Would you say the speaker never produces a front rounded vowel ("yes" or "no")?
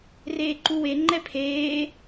yes